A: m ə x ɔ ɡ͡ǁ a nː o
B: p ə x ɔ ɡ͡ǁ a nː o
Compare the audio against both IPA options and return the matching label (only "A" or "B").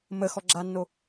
A